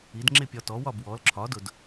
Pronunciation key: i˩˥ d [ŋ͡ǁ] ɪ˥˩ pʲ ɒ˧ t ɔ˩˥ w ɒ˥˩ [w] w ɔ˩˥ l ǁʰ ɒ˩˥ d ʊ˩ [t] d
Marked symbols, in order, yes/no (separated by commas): yes, no, no